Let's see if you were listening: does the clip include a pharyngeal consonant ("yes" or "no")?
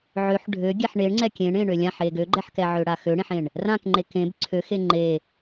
yes